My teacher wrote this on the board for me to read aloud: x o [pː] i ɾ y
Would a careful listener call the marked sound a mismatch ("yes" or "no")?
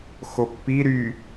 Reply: no